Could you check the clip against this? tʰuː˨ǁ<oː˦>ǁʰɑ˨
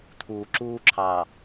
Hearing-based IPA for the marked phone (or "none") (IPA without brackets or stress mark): uː˦